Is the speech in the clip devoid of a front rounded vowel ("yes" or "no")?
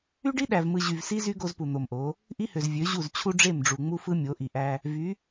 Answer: no